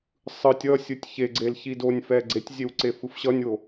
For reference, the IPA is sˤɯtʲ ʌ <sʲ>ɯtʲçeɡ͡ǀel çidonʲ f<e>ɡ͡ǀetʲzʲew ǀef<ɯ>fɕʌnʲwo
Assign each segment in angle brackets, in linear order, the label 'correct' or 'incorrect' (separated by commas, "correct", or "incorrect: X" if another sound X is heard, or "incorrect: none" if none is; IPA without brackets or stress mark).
correct, incorrect: ɛ, correct